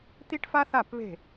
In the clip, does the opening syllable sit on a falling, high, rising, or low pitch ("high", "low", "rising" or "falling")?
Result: high